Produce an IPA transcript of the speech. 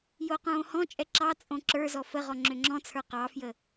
j o q õː h ɔ̃ t͡ʃʼ ɛ ǁ ɑ t͡sʼ õ ǁ ə˞ z ɔ f ə ʁ ɔ ŋ͡ǁ ʏ ŋ͡ǁ ɔ̃ t͡sʰ ə˞ q ɑ f j ə

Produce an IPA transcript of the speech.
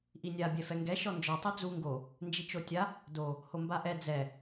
ʔ i nʲ a bʲ ɛ f ɛ ŋ ɡ ɛ ʃ ɔ n d͡ʒ ɔ tˤ o d͡z u ŋ ɡ o | n d͡ʒ i t͡ʃ o tʲ a | d o | h o m b a ʔ ɛ d͡z ɛ

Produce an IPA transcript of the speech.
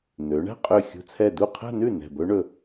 n̪ ø˩˧ ɳ æ̤˥˧ qʼ ø˧˩ xʲ ṳ˧˩ t͡sʰ ɛ˧˩ d u˥˩ qʰ æ̤˥˧ n ʉ˥˩ n ɛ̤˧˩ b ɵ˦˥ ɳ ɵ˧˩

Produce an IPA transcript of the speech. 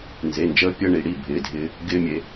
n z e˩˧˩ n d͡ʒ əː˧ pʲ əː˧ ɳ i˩˧ ɽ i˩˧˩ bʱ ɪː˩˧˩ dʱ ɪː˧ | ɡ ɪː˧ mʲ e˩˧

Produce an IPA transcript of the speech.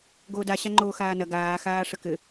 ɡ oː d a ɕ a ŋ͡ǃ oː x aː n ɐ ɡ aː x aː ʂ ə k ɘ

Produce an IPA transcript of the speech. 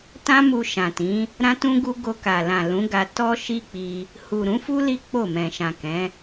t ã˦ m u˧ ʃ ã˨ t ĩ˨˦ | ɾ ã˦ t ũ˦ ɡ u˦ ɡ o˧ k a˨ l ã˨ l ũ˨˦ ɡ a˧ t ɔ˦ ʃ i˦ k͡p i˧ | h u˨ ɾ ũ˨˦ f u˦ l i˦ k͡p o˦˨ m ɛ̃˨ ʃ ã˨ k ɛ̃˨˦

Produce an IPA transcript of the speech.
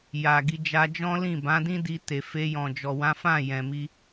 j a˨ ɡ i˧ d͡ʒ a˧ d͡ʒ ɔ̃˦ l ĩ˦˨ b ã˨˦ d ĩ˦ d i˧ t e˨ f e˧ j ɔ̃˨ d͡ʒ ɔ˨ w ã˨˦ f ã˦˨ j ɛ̃˨ m i˧

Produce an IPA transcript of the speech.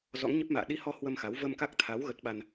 z ɔ̰˧˥ ŋ ɲ ə˦˥ p̚ m a̰ː˧˨ ɗ i˧ h ɔ˧ h w ə˧ m x a˨˦ w v ə˧ m k a˦˥ k̚ t̪ʰ a˨˦ w ɣ ə˦˥ t̚ ɓ a˧ n

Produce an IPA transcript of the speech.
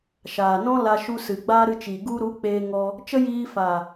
ʃ aː˨ n ɔ̃˦ l a˧ ʃ u˧ s ɨ˨ ɡ͡b aː˦ ɾ ɨ˧ t͡ʃ i˨ ɡ u˧ ɾ u˨˦ k͡p eː˧ ŋ ɔ˧ | t͡ʃ ə˦ j iː˧ f aː˨

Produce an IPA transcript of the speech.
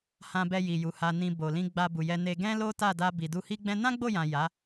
h ã˧ b ɛ˧ j i˨ j u˨ h a˨ n ĩ˨ b o˨ l ĩ˧ ɡ͡b a˧ b u˨ j ɛ˧ n e˧ ɡ ɛ̃˦ l o˦ t a˦˨ d a˧ b i˨ d u˧ h i˦ ɡ͡b ɛ̃˦ n ã˦ ɡ͡b o˦˨ j ã˨ j a˨˦

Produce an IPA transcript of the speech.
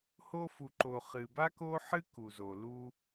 h o˧ f u˨ ǃ o˨ χ ɨ˨ b a˦ k o˦ ħ ɨ˦ k u˨ z o˨ l u˧

